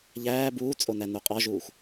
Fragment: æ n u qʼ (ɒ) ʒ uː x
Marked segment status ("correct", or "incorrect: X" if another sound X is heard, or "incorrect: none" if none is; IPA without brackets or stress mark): correct